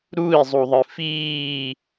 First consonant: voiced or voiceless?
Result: voiced